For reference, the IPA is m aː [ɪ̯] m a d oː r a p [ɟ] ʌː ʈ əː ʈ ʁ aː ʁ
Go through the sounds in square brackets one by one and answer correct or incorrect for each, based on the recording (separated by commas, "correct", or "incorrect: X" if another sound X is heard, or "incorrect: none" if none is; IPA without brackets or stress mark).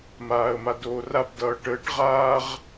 incorrect: ə̯, incorrect: d